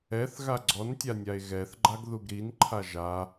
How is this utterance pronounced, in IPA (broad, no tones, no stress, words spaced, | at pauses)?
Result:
ɛθ ɣaɡ͡ǀɔntʲanʲae̯ ɣɛθɡ͡ǃaɡ ðuɡɾinǃʰa ʒa